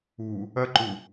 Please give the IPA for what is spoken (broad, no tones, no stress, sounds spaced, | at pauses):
u | ɐ ǃ u